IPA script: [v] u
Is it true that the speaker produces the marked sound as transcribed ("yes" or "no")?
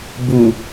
no